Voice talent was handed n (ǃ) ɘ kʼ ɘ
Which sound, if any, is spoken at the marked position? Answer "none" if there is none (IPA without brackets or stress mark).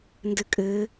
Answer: d